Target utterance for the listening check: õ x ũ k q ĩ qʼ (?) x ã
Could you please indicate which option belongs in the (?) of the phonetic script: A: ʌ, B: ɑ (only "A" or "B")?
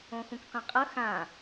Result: A